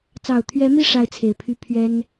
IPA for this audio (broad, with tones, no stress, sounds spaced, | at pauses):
t͡s ɑ˨˩ ʊ̯ t̪ʰ ɥ ɛ˧˥ m i˥˧ ʂ a˥˩ ɪ̯ t͡sʰ e˨˩ ɪ̯ pʰ y˥˩ pʰ ɥ ɛ˥ n